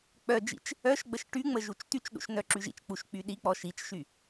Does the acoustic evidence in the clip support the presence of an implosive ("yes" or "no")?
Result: yes